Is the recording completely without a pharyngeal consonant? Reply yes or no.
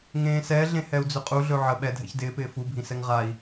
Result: no